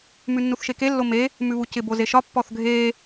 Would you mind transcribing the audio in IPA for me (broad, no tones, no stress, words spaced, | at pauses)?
mʉnːuθʃeke lːome | mʉβucɪ bozeʃɒ pːɔθɡʱe